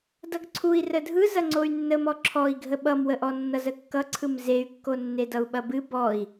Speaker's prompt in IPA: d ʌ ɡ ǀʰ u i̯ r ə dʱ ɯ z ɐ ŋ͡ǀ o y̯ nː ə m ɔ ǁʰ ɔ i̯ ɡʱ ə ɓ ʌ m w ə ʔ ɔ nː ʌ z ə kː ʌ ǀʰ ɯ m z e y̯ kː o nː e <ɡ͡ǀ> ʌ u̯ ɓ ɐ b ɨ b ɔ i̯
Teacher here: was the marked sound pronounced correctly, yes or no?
no